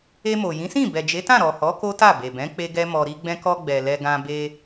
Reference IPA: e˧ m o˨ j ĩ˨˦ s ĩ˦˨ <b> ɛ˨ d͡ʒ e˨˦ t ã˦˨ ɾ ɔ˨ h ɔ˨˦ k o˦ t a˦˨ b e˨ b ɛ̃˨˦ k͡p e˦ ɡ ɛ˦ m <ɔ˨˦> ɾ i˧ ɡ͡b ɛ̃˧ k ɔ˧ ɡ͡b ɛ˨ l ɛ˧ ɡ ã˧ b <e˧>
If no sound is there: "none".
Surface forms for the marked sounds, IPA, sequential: b, ɔ˧, e˧

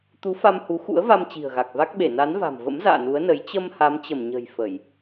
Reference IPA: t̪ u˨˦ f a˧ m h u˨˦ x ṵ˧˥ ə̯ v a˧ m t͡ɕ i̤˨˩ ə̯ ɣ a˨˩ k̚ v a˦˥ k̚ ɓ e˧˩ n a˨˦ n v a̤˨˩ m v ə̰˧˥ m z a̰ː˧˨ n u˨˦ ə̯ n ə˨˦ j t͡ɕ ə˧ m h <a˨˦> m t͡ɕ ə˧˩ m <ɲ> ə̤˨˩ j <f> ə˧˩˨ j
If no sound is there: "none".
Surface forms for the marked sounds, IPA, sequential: a˨˦, ɲ, f

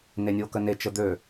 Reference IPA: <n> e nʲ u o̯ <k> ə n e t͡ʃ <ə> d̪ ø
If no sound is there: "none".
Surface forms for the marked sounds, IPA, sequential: n, k, ə

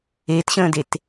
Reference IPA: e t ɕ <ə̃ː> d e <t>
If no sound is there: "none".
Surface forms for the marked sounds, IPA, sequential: ə̃ː, t

